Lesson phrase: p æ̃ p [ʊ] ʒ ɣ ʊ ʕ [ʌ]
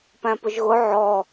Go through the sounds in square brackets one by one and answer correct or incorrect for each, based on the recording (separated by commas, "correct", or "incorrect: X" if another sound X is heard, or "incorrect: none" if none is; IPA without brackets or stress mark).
correct, incorrect: ɔ